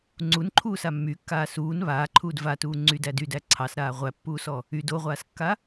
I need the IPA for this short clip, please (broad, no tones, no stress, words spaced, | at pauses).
ŋ͡ǀunǃʰuːsa mːykːaː suːn βaːǃʰuːd vatuː ŋ͡ǀydæd ydæ ǀʰɑsɾaː ʁʷæpːuːsɔ | yd oʁʷaːskːa